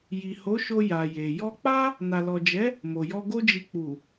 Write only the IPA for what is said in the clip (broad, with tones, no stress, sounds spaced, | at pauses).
j i˨ h o˨˦ ʃ o˧ j a˨ j e˨ j ɔ˧ k͡p a˦ | n a˨ l ɔ˨ d͡ʒ ɛ˨˦ | m o˨ j ɔ˧ ɡ o˦ d͡ʒ i˧ k͡p u˨